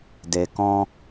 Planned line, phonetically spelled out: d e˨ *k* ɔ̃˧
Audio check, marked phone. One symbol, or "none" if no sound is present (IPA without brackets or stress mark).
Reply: k